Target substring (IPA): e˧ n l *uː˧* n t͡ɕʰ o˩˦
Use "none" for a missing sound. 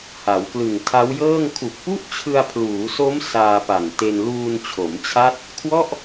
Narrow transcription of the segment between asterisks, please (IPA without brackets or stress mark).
uː˧